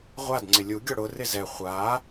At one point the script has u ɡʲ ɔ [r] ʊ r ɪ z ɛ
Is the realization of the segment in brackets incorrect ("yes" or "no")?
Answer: yes